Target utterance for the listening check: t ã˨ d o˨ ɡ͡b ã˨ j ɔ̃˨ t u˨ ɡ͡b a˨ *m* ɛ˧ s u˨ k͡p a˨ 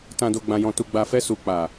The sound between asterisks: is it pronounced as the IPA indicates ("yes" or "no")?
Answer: no